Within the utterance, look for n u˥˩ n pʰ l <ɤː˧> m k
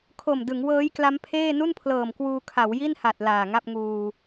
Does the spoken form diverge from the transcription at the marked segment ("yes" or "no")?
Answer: yes